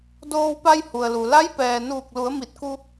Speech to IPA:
d oː˧ w p a˧ j h u˩ ə̯ l u˩ l a˧˥ j p ɛː˩ n uː˧˩ k̚ l u˩˧ ə̯ m i˧˩ t̚ k u˧

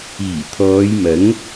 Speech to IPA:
iː˨˩ t̪ʰ ɔː˨˧ j m ɐ˨˥ ŋ

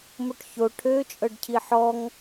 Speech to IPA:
m o ʈ ç o ʈʰ ø t͡ʃʼ ɤ ɖ cʰ i ħ ɔ ŋ

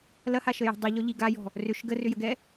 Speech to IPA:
l ɐ h a ʃ ə j ə̤ dˤ i ʎ ɔ ʎ i ɡ a j ɔ̤ | r ʏ ʃ ɡ ə r ʏ j ə ɡ ɛ

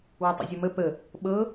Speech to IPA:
w ɘ tˤ ə̰ zʲ ə m ə p ə | ɓ ɤ

